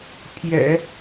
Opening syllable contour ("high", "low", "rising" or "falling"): low